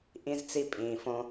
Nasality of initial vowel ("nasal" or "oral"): nasal